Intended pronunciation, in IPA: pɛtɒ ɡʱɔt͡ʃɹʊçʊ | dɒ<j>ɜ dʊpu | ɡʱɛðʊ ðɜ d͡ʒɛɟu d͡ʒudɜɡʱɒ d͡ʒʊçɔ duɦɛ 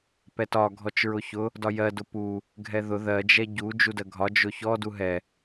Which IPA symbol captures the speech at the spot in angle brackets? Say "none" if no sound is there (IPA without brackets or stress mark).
j